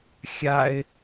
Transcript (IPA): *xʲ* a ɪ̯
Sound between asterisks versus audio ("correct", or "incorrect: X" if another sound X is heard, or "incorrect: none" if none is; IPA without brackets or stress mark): correct